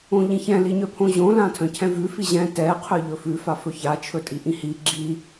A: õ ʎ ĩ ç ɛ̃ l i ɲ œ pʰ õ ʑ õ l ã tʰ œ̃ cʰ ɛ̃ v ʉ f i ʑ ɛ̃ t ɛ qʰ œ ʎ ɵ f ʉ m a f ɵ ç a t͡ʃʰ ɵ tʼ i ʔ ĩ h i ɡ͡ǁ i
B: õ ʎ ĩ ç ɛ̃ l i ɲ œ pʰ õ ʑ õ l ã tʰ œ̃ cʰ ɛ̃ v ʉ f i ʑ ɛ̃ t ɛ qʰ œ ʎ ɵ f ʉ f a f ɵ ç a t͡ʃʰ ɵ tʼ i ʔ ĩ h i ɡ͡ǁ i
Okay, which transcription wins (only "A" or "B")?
B